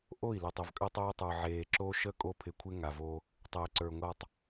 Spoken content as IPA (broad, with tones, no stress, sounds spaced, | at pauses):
ʔ o˦˨ i̯ l o˨ tˤ ə˨ v kʼ ə˦ tˤ o˦ i̯ tˤ ə˞˨ ʕ eː˨ ǁ o˦ ʃ ə˦˨ kʼ o˦ pʰ ɪ˨ kʷʰ ɪ˦ ŋ a˨ v o˦ | tˤ eː˨ ǀ ə˞˨ ŋʷ a˨ tˤ